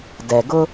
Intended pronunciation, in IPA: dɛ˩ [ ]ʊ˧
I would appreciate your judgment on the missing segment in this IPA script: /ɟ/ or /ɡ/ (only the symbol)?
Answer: ɡ